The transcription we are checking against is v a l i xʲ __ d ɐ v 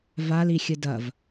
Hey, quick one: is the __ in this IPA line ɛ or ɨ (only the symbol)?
ɨ